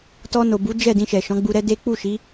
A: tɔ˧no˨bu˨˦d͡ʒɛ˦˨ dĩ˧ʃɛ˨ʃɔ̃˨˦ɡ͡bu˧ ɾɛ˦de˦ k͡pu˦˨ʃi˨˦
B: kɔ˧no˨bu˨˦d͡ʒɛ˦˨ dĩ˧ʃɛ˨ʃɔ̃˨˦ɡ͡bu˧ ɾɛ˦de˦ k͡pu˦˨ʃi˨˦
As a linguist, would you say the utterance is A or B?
A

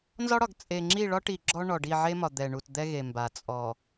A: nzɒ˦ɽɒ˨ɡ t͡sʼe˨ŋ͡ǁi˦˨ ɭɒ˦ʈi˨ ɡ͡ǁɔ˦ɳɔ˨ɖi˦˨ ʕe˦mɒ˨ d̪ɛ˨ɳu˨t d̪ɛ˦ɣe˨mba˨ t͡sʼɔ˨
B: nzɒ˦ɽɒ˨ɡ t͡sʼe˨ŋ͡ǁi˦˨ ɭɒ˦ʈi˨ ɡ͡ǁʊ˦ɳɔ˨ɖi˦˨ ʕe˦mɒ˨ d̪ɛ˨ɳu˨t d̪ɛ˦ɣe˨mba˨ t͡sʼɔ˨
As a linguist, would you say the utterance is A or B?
A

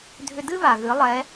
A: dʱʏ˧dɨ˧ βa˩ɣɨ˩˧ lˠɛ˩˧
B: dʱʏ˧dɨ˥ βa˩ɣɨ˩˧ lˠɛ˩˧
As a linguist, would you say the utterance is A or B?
B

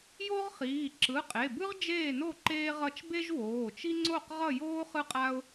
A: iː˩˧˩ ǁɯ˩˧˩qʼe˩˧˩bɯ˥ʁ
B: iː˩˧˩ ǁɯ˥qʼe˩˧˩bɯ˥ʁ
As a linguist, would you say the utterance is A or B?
A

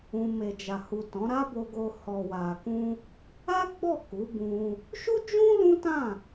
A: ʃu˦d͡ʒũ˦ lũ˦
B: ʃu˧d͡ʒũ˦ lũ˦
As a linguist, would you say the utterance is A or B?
A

